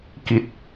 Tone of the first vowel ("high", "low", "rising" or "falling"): low